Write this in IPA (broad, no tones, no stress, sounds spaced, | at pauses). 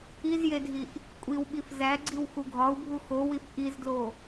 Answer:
i z j e dʱ i ʔ | kʷʼ i w ɓ i f z æ ɡ͡ǀ i w x u ɡʱ ɒ u̯ bʱ u x o w i f ʔ i z d l o